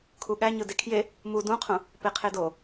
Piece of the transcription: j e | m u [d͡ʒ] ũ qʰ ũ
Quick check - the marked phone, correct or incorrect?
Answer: incorrect